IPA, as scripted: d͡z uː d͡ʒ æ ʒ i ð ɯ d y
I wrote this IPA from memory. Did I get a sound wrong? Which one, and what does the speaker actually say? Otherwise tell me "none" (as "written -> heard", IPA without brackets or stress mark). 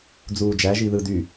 none